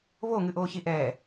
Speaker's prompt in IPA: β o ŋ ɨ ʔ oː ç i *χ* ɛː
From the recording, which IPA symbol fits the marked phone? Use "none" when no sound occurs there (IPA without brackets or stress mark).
ʔ